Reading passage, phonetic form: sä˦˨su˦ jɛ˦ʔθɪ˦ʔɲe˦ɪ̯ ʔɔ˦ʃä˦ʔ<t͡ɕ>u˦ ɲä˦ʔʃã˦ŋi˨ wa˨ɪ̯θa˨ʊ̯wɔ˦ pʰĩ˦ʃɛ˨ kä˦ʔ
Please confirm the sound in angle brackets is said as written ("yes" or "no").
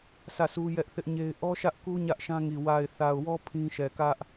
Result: no